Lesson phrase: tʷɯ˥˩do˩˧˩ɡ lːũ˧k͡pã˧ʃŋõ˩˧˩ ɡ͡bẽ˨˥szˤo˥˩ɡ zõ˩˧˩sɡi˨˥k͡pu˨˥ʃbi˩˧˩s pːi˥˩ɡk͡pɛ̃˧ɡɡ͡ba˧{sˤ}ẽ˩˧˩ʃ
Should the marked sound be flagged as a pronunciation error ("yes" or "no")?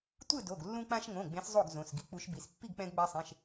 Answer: no